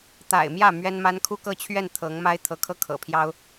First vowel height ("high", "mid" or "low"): low